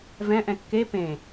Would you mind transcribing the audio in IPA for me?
v ɛ̃ ʔ ɛ̃ kː e p ẽ

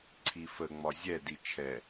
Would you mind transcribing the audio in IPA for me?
ǀʰ i f ə ŋ͡m ɒ zʲ ɛ d i t͡ʃʰ ɛ

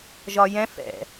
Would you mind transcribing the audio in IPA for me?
ʒ ɒ j ɛ̃ f ɛ̰

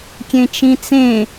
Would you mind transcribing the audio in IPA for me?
kʲ ẽ t͡ʃ ĩ t͡s ẽ

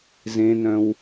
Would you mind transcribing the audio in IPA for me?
z ẽ n œ̃ w

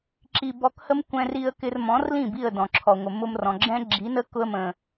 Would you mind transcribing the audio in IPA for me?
ǁ i˧ b ɔ˧ k h ə˦ m kʷ ɛ̃˦ r i˦ ə̯ k ɪ˧ r m ɔ̃˨˦ r l ĩ˦˨ b i˦˨ ə̯ d ɔ̃˨ ǁʰ ɔ˨ ŋʷ ə˨ m ʊ˦ m r ɔ̃˨ ɡ͡ǁ ɛ̃˦ ɡ͡ǁ i˨˦ n ə˦ k ʊ˦ ə̯ m ə̃˨

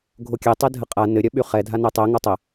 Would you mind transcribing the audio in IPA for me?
ɡʱ o kʲ ɛ tˤ ɛ dʱ ə qʼ a n ɘ ɾʲ œ ɓ y χ ɛ dʱ a n ɛ tˤ ɛ ŋ o tˤ ə

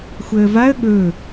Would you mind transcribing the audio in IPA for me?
xʷ əː v a ə̯ ɠ ɵː

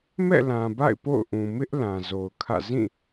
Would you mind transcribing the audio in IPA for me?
m ɛ̰˦˨ l ã˨ b a̰˦˨ ɪ̯ p o̰˦˨ ʊ̯ ʔ ũ˨ m ɪ˦ ʔ l ã˨ z o˨ ʊ̯ kʰ ä̰˦˨ z ĩ˦˨

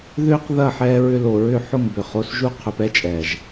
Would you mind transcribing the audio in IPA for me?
ð ʏː˦ q ð ɐ˦˨ ħ ɛː˧ ɹ ʏ˧ l o˨ ɹ ʏ˦˨ ħ ʊ˦˨ ŋ b ʏ˨ χ o˧ s ʒ u˦ qʰ ʏ˨ p ɛ˦ t͡ʃʼ ɛː˨ ʒ

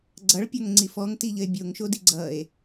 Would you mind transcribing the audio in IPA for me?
ɡ͡ǀ ʌ ɭ pʲ ɔ ŋ ŋ͡ǀ i f ɔ ŋ t i ʎ ə e̯ bʲ o ŋ ʃ o d i ɡ͡ǀ ʌ e̯

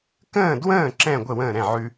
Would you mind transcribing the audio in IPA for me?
k ə̃ː˥˨ d w ə̃ː˥˨ ǁ ɛ̃˥˨ ɡʷ ə˥˨ w ə̃ː˥˨ ɾ ɛ̃˥˨ ʕ ʉ˦

